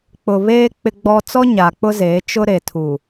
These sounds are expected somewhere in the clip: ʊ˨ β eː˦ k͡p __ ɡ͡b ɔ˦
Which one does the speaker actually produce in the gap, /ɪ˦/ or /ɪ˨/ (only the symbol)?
ɪ˦